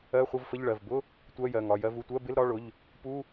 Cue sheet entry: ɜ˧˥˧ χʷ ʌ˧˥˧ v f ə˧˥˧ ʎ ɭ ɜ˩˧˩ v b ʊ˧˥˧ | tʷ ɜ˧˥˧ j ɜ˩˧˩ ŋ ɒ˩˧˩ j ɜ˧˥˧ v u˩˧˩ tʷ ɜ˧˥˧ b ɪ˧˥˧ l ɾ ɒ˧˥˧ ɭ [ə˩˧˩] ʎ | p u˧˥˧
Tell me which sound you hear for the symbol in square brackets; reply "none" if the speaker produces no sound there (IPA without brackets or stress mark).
ʊ˩˧˩